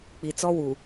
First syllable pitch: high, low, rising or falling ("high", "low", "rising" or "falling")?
low